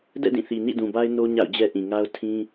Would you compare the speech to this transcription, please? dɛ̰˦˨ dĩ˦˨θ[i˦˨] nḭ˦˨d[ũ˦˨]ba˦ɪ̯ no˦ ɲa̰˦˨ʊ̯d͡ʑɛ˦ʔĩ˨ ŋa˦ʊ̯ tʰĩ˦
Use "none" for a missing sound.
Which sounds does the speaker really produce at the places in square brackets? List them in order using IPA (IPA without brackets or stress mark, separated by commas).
i˨, ũ˨